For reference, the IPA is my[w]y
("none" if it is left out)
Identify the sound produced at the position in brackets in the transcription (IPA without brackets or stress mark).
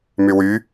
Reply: w